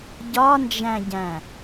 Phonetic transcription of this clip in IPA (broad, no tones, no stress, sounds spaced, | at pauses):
ɟ ɒ n d͡ʒ æ̃ ɟ æ̃